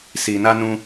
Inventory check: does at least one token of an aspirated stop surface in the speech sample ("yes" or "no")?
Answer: no